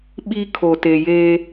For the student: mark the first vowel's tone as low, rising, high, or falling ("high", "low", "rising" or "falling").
high